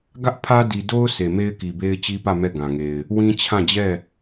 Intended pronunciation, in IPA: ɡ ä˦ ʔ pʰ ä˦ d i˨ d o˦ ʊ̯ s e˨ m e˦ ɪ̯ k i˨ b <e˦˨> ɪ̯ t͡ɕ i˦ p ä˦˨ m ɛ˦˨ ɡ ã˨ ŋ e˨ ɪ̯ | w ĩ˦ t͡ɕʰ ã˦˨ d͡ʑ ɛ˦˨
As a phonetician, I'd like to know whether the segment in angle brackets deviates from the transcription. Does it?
yes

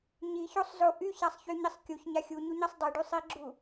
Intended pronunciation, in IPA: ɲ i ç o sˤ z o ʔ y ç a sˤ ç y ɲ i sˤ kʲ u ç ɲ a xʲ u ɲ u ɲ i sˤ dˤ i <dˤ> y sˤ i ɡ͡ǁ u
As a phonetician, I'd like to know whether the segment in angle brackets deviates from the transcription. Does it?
yes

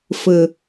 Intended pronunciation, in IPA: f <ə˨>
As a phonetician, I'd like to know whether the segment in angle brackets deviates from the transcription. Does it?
no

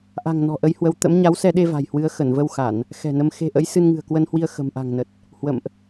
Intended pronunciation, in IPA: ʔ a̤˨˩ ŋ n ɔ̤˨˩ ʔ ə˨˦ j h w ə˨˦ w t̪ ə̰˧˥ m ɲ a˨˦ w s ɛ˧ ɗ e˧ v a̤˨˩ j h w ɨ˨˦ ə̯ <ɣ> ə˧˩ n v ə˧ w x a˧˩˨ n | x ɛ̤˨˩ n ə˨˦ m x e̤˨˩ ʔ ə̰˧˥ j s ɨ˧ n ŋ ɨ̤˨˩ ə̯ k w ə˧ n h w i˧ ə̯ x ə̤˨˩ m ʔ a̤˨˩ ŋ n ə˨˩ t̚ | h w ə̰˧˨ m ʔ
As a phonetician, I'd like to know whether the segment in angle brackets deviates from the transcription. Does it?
yes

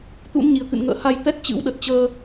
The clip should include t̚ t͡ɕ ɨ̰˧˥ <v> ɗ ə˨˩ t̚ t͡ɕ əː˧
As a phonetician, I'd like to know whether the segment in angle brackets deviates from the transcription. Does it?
yes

